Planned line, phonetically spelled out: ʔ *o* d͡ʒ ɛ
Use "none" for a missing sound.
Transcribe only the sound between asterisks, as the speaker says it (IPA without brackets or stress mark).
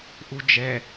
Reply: u